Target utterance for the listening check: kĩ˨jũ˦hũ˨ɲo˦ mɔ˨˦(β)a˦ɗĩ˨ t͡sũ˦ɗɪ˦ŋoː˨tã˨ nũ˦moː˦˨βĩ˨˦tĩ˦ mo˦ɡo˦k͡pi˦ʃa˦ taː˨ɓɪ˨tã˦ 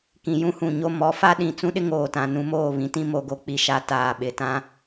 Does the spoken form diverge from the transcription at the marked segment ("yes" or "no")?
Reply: yes